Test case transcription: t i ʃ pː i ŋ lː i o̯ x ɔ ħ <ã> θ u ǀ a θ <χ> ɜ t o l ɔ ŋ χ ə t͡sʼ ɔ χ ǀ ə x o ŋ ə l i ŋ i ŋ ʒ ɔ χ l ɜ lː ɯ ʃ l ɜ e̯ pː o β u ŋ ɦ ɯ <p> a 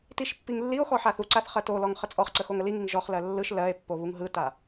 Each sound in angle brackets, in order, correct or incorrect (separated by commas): incorrect, correct, incorrect